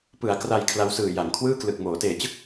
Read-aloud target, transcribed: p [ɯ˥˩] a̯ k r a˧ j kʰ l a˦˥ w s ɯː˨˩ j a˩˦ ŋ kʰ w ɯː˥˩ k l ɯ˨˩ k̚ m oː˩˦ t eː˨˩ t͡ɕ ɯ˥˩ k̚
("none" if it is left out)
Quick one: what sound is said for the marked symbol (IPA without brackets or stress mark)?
ɯ˩˦